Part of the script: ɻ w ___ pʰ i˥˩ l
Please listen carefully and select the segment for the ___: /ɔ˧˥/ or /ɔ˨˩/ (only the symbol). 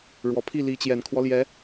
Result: ɔ˨˩